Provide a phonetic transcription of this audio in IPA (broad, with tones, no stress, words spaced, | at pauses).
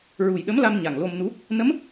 ɹu˨˩jɗə˧˥m la˧m ɲa˨˩ŋlo˧mnu˧˥ | nə˧˥m